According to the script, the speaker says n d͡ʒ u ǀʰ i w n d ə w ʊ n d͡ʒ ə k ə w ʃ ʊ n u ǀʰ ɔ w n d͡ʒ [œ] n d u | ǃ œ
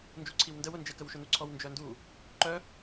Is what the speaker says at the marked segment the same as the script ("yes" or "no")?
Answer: yes